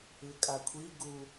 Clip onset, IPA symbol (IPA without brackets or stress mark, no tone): ɯ